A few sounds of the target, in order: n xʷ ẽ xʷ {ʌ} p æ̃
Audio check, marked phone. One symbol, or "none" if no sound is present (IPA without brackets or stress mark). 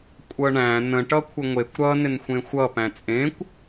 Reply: ʌ